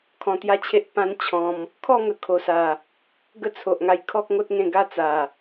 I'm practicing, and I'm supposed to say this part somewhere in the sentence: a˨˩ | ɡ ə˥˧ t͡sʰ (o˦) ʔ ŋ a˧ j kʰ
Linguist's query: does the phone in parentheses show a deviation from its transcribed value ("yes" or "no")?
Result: yes